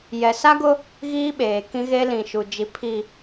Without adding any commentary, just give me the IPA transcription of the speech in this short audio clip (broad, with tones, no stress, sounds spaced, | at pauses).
j ɛ˨ s a˦ ɡ ʊ˦ | ɣ iː˦ ɓ eː˨ k ĩ˦ ɣ e˦ l ĩ˨ ʃ u˨ d͡ʒ i˨˦ pʰ i˨